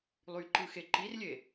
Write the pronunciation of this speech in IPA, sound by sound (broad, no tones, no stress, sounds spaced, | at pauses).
lˠ y ǃ ɯ x e ǃ i r lʲ e